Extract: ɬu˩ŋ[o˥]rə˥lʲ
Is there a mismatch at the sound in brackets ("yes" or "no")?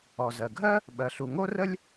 no